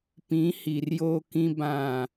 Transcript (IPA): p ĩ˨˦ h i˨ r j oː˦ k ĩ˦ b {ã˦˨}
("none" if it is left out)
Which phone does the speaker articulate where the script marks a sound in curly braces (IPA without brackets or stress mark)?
ã˦˨